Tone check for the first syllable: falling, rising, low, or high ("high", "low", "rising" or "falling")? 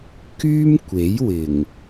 high